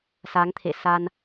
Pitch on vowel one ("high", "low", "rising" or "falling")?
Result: rising